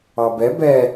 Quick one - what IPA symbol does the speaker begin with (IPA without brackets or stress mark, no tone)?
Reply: ɑ